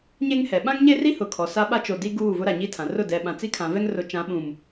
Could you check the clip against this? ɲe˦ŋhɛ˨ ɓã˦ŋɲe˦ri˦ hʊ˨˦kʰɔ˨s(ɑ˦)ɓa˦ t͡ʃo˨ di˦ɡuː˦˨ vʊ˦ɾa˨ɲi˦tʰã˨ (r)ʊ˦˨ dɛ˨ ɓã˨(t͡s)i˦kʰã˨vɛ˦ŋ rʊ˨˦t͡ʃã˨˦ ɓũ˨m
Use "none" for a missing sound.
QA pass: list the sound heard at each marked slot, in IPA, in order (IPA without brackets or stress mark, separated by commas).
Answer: a˦, r, t͡s